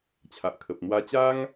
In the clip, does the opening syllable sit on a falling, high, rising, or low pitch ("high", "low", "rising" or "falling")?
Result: low